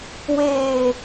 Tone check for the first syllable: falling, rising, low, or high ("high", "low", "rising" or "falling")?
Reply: low